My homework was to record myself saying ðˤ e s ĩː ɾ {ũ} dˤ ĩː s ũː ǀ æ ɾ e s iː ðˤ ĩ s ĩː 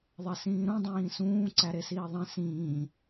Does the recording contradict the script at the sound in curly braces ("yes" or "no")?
no